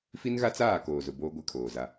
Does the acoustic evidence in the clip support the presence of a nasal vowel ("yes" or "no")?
no